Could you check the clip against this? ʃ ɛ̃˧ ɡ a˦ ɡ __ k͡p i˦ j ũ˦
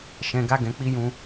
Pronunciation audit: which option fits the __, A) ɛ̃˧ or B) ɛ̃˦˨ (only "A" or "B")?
A